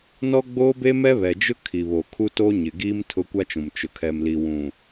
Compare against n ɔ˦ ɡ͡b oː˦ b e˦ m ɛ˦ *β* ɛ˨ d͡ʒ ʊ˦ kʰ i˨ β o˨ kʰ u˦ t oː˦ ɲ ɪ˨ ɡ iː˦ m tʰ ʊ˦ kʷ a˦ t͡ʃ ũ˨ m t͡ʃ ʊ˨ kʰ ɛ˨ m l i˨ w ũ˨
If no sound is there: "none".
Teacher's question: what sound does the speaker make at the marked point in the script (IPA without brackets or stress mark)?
β